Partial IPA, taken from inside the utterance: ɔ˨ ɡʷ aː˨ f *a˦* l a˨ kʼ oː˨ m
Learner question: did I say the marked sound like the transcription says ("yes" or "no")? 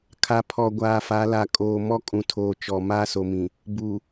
no